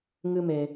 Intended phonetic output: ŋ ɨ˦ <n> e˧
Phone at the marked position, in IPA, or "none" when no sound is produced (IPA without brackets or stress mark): m